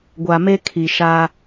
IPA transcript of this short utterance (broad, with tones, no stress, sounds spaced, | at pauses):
ɡʷ a˨ m e˦ kʰ i˨ ʃ a˦